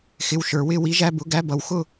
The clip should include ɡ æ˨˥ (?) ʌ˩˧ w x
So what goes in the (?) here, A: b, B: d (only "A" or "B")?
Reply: A